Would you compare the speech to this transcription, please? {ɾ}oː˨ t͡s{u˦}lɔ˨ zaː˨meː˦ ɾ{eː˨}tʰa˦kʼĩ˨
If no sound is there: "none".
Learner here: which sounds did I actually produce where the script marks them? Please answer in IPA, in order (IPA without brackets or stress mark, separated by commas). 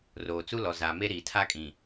r, u˦, iː˨